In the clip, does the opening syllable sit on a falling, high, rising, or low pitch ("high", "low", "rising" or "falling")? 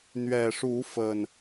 low